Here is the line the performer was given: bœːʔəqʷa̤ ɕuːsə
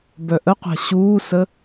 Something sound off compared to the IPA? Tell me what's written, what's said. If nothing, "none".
œː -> œ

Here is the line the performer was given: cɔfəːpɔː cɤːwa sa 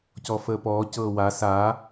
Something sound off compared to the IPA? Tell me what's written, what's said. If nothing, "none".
none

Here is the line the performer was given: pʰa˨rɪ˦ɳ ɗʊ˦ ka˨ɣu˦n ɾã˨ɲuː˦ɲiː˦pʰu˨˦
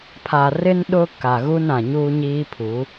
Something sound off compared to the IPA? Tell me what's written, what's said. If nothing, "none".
ɳ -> n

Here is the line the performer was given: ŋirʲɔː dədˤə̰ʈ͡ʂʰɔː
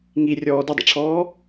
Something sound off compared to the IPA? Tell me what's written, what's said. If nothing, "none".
none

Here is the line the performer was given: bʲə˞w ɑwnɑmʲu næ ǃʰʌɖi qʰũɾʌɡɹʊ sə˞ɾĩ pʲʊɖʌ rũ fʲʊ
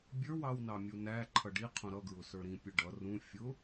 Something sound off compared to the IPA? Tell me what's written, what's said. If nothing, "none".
none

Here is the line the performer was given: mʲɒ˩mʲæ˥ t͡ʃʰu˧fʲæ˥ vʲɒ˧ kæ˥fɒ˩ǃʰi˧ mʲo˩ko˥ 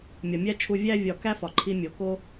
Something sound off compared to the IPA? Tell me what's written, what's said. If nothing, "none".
fʲ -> vʲ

